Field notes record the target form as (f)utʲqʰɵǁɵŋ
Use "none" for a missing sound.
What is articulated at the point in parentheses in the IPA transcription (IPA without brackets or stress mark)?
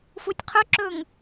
f